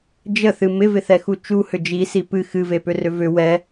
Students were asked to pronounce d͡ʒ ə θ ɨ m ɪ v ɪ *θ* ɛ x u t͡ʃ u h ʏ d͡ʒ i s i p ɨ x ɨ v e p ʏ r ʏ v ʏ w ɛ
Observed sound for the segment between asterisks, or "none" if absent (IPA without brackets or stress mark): θ